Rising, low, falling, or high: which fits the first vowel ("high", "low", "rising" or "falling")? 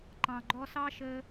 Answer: low